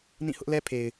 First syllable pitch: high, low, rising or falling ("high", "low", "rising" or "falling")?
falling